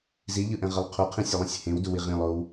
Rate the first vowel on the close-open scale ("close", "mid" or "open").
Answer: close